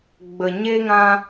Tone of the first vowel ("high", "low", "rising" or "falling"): low